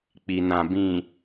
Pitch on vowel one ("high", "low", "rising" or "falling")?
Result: low